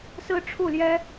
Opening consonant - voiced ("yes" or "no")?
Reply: no